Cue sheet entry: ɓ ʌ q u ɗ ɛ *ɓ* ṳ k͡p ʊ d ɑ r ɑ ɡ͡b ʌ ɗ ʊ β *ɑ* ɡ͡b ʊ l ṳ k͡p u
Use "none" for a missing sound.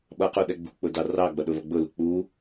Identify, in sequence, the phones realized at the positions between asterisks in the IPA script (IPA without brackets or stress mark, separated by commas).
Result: ɡ͡b, ʌ